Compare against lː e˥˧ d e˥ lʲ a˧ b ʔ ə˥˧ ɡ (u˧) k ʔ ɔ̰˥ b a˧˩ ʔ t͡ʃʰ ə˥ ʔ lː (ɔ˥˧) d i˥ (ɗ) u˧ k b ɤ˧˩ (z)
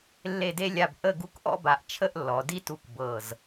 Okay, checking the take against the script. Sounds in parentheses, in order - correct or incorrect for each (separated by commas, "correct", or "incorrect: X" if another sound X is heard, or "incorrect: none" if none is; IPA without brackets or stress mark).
incorrect: u˥˧, incorrect: ɔ˩˧, incorrect: t, correct